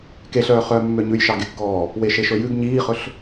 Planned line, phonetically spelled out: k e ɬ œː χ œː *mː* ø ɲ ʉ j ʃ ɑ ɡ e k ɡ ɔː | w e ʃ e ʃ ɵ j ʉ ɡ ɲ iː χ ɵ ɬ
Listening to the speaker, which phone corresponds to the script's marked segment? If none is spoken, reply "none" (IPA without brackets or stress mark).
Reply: mː